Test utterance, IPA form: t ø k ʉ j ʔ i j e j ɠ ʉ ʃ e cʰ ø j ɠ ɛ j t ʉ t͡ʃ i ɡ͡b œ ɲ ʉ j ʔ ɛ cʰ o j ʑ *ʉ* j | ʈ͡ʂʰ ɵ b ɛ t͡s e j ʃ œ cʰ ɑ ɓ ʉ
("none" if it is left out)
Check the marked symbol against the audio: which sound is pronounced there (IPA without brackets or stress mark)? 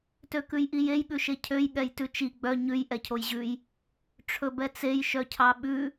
ʉ